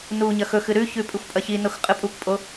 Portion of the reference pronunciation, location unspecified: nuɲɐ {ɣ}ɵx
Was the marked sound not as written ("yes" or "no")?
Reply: yes